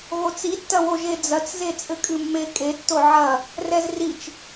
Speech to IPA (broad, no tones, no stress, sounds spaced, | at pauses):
ɣ o t͡s i tː ɐ w o ʒ e d͡z ɐ t͡s z e t͡sʼ ɘ kʼ ɨ mː e kʼ e tː o ʕ ɐ | r ɛ z r i t͡ʃ